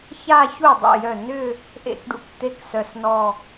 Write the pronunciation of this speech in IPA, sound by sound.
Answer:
ça˥˧ çu˥˩ dˤṵ˧˩jœ˧˩ nʏ˥˧ | ʔḛ˥˩kɖṵ˥˩k t̪e˥˧ksœ˧˩snɔ˥˧

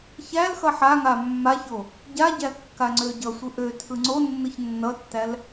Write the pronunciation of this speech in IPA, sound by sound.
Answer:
çæl xʌħaŋa mːaço | ɟaɟæ kːaŋ͡ǀøɟʌsʷɯ ʔø tʰɯŋ͡ǀonːɯç nːʌtːæl

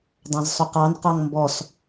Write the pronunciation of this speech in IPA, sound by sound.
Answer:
dˤɑ̃zsˤʊqɑn qɑŋmbɔs

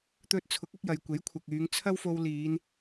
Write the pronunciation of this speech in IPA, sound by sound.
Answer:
t̪ɵ˧t̚t͡sʰʊ˨˥k̚ ɐ˨˥k̚jɐ˨˧jkʷe˨˥j kʷʰɐ˨k̚yː˨˧ŋ t͡sʰɐ˥wfo˧wliː˨˧n

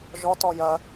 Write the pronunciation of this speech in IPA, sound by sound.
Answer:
ʒɔt ɔjɜ

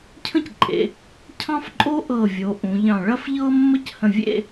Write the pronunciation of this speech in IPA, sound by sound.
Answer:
cʰə̃˥cǃʼḛ˩˧ | cʰɑ̃˥fǃʼo˥ ʔɤ˧˩vʲo˩˧ ʔũ˩˧ʎɑ̃˧˩ ɭɐ˥f ʎɤ˥mːə˥c hə̃˧˩vʲḛ˥˧

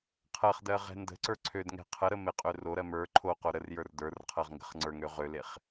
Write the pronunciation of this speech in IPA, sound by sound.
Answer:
qʰɜχdɜ ʁɛ̤ndə̤ǀə˞ ǀʰødŋɛ̤ qʰəɾə meqʼøroɾɜ mə˞ ǃʰoqo ɾərjə˞r də˞rqʰɜʁ ŋɡə̤χŋ͡ǀə˞ŋø ʁøleχ

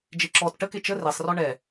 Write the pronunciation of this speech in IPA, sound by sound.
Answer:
d͡ʒeǁɔt ʈəke t͡ʃə resˤrɔ ɳɛ

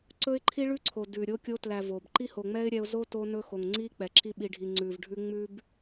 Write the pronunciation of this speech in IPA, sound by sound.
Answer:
ǀɵ˦ɪ̯ǃʰi˦ɭʉ˦ǀʰo˨ dʉ˨ ɾʲo˧kʲo˧tlæ˨ vo˨b ǃi˦ ho˨ŋ͡mɛ˦ɪ̯ɾʲɛ˧ʊ̯ zo˦to˧nɵ˧ xo˨ŋŋ͡ǀi˦k͡pɛ˨ ǁi˧ɓi˨ɖʱi˨ ŋ͡ǀʉ˨vɖʱʉ˦ ŋ͡mʉ˦b

